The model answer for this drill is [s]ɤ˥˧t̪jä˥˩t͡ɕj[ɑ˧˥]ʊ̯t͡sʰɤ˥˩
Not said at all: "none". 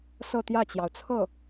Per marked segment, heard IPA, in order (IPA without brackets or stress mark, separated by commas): s, ɑ˩